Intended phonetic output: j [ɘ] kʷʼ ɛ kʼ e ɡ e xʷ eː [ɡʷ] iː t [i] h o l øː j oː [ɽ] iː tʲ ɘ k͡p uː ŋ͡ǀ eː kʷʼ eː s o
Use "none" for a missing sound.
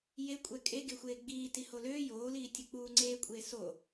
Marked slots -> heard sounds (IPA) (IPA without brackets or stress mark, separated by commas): e, ɡ͡b, i, l